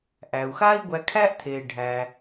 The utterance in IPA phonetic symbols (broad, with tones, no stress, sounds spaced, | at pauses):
ʔ æː˩ u̯ x aː˥ i̯ ɡʷ æ˧ kʰ æː˥ ʔ tʰ eː˩ ɖʱ æ˩